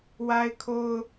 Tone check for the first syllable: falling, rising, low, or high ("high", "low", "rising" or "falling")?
high